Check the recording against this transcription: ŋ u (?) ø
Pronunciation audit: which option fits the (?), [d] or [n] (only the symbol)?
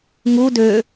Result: d